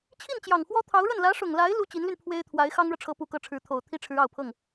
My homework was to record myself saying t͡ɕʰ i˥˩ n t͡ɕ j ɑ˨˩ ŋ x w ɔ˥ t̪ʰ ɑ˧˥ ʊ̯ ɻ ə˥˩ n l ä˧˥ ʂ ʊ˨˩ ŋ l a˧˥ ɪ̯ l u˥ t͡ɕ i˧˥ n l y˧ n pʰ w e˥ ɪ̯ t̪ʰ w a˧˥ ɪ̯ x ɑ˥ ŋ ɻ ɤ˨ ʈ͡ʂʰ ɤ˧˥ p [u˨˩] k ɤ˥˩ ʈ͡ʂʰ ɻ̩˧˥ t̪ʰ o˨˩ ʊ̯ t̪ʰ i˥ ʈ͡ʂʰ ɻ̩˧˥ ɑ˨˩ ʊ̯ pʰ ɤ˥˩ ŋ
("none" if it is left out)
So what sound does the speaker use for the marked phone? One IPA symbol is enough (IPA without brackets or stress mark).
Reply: u˨˩